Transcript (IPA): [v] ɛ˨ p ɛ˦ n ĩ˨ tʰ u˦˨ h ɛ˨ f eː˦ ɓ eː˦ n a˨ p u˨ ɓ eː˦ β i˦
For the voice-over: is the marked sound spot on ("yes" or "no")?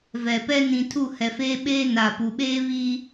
yes